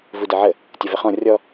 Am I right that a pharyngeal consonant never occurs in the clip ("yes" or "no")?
no